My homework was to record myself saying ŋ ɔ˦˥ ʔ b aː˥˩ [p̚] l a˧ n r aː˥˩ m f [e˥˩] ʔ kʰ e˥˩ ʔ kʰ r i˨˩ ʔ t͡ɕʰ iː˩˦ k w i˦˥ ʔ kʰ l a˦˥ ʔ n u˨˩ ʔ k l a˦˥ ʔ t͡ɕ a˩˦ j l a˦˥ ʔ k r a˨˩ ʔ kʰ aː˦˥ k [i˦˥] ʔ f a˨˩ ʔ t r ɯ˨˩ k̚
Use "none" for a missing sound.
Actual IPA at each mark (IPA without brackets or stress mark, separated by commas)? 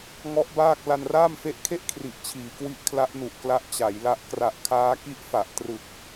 k̚, e˦˥, i˦˥